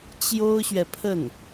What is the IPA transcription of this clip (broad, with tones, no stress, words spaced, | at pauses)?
t͡ɕjo˥ʊ̯ɕɥɛ˨pʰə˥˩n